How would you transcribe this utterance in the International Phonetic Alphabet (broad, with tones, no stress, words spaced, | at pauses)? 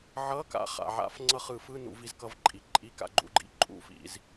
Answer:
ʕʌ˧˥˧ka̰˨˦ χa̰˩ʕa̰˨˦f ŋ͡ǀʌ˦˨χɯ˧˩˧fɯ˧˥˧ nṵ˧˩˧vi˨˦zkʌ˨˦vǃʼi˩ ǃʼi˧˥˧ka̰˦˨ɡ͡ǃṵ˦˨ɡ͡ǃḭ˦˨ ǃʼṵ˧˩˧fḭ˩z